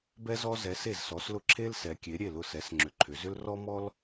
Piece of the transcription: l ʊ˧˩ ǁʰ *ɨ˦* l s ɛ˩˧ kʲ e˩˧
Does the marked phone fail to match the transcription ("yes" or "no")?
yes